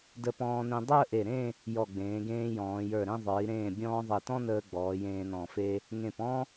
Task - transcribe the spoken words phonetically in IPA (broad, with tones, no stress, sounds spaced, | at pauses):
d ə˧ p ɔ̃ː˧ n ẽ˧ dˤ əː˥˧ ʔ e˧˩ ɾ ẽ˥˧ | j ɔ˧˩ ɡ͡b ẽː˩˧ ɡ ẽː˧ j ɔ̃ː˩˧ j ə˞˧˩ ɾ ẽ˥˧ ðˤ ə˞˩˧ i̯ ɾ ẽː˧˩ bʲ ɔ̃ː˧ ðˤ e˧˩ t ɔ̃˥ n əː˧ ɡ͡b ɔː˩˧ j ẽː˧ n ɔ̃˧˩ f e˥ | ŋ ẽ˧˩ p ɔ̃˥